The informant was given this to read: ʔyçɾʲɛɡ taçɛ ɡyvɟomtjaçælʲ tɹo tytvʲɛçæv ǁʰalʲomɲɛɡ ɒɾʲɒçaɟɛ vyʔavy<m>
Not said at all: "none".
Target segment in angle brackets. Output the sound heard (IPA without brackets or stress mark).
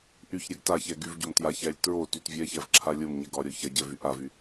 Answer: none